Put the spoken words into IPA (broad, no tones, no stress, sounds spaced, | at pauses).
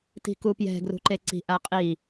t i̤ k u p j ɛ̤ ɡ r ṳ ǃ e ǀ i̤ ʔ a qʼ i